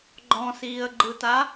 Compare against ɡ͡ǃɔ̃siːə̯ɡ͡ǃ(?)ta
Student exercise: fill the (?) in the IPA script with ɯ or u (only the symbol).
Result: ɯ